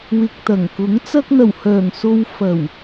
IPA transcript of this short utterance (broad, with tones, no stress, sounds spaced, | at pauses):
w ɪ˨ k̚ t̪ ɐ˨˩ ŋ k ʊ˨˥ ŋ t͡s ɐ˧ k̚ n̪ ɐ˨˩ w h œː˨˩ ŋ s o˧ w f ɐ˨˩ w